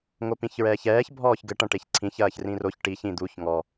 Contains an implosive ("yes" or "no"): no